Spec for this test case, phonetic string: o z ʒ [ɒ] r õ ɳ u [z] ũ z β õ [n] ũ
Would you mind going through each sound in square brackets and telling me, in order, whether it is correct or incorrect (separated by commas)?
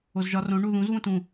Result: correct, incorrect, incorrect